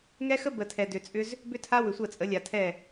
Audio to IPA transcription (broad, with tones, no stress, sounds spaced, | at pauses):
ŋ ɛ˦ x ə˦ b ə˨ tʰ ɛ˨ d ʏ˨ t͡sʼ ʏ˦ z | b ʏ˦ tʰ a˦ w ʏ˨ sʷ ə˦˨ t͡sʼ ə˨˦ lʲ a˨ tʰ ɛ˦˨